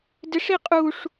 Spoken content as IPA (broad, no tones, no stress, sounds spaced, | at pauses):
d ɪ ʂ i qʼ u ʂ